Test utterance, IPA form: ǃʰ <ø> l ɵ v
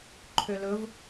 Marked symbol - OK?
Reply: yes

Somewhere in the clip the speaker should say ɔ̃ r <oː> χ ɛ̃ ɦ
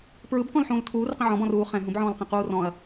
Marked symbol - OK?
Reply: no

